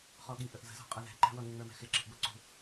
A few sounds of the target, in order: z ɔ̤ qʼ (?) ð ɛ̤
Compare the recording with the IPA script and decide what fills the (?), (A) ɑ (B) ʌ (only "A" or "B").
B